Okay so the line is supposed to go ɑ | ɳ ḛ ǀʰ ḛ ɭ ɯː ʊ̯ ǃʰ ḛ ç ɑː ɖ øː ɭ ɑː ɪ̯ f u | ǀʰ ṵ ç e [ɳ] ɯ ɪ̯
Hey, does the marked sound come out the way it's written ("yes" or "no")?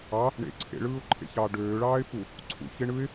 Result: yes